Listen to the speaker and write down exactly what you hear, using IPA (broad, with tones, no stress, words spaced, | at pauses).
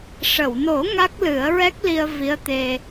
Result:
ʂə˨˩˨wno˨˩˦ ŋa˦˥k̚lɨ˨˩˦ə̯ɹɛ˦˥k̚ li˧ə̯vi˧˥ə̯t̪e˧